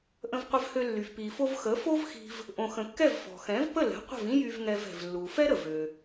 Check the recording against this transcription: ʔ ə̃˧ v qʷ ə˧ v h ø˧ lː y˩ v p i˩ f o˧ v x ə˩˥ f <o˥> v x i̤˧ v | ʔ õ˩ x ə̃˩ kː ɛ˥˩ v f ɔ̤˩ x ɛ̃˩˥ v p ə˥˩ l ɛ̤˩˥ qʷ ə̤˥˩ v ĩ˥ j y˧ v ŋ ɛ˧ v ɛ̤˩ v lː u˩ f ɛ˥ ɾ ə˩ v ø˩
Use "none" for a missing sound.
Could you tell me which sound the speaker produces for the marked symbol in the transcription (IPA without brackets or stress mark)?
o˥